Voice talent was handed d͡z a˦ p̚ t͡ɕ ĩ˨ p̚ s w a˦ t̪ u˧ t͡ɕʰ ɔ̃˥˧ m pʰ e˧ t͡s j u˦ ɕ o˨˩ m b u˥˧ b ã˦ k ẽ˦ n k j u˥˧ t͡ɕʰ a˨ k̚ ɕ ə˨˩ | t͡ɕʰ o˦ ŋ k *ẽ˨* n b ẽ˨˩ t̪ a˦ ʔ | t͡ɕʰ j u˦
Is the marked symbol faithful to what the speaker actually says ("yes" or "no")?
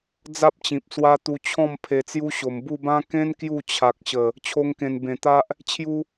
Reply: no